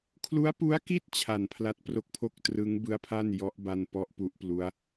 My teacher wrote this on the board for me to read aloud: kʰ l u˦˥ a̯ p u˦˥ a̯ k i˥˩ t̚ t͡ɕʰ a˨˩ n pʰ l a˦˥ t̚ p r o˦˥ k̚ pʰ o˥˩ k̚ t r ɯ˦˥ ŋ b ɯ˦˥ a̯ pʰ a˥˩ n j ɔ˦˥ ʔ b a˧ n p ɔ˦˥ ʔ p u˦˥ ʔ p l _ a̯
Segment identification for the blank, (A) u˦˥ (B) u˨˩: A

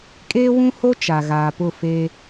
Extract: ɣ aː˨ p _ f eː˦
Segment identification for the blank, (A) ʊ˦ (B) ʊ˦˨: B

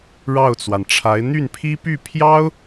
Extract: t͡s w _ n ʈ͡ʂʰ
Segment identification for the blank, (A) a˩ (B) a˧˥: A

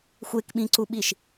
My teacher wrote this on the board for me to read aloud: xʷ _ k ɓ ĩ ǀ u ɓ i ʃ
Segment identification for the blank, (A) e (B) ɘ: A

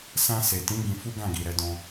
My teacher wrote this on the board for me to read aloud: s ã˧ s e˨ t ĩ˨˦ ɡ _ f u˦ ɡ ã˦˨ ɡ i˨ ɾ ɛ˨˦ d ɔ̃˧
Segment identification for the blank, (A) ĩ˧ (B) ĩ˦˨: A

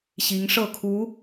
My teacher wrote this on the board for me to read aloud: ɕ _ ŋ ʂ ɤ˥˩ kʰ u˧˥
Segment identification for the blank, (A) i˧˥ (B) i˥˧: A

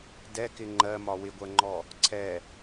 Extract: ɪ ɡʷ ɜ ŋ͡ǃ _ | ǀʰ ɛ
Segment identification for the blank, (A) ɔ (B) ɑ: A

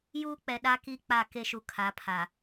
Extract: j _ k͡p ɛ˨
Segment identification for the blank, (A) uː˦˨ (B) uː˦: B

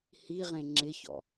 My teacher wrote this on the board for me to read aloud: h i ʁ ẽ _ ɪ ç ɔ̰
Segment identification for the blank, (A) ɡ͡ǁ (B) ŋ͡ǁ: B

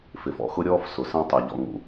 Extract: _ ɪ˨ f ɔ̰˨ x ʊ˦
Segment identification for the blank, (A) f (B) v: A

